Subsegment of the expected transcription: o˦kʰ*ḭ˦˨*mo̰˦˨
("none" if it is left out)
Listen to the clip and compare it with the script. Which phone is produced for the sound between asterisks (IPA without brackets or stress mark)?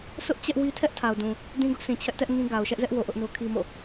i˦